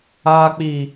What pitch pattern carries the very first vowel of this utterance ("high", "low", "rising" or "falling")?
low